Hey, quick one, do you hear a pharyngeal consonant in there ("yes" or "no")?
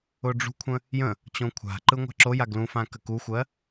no